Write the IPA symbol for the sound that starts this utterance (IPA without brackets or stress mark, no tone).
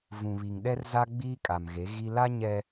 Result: v